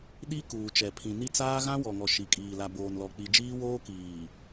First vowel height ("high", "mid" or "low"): high